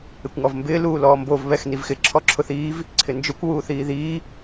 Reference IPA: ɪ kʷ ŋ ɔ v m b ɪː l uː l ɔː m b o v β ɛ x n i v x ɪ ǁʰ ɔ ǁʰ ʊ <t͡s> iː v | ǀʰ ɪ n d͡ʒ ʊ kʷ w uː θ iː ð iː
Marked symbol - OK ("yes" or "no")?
no